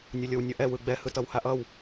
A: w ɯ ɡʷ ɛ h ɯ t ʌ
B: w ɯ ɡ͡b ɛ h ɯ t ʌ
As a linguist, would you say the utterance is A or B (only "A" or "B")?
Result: B